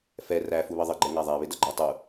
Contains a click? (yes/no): yes